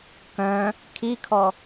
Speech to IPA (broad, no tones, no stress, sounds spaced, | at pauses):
k œ̃ | kʰ i kʰ ɔ